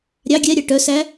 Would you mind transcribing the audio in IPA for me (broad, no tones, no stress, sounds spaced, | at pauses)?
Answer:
ɾʲ ɑ ɡʲ ɛ ɾʲ ɑ ʈ œ s æ